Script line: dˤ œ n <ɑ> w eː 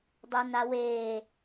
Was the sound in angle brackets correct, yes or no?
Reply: no